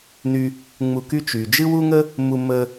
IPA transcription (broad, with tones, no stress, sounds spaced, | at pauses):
n y˧ | ŋ͡m u˧ k y˥ t͡ʃ y˩ d͡ʒ ɨ˥ w u˥ ŋ ə˥ | m u˧ m ə˧